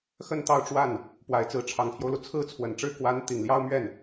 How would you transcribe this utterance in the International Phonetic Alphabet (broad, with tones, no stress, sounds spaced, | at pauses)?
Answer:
x ə˥˧ n t̪ ɑ˥˧ ʊ̯ ʈ͡ʂ w a˥˩ n | p w a˨˩ ɪ̯ t͡s ɹ̩˧˥ ʈ͡ʂʰ ɑ˨˩ ŋ pʰ j o˦ ʊ̯ l u˩ t͡sʰ ɹ̩˥˩ t͡sʰ w ə˨˩ n ʈ͡ʂ ɻ̩˥ k w a˧˥ n t̪ i˨˩ ŋ l j ɑ˥ ʊ̯ m ɥ ɛ˥˩ n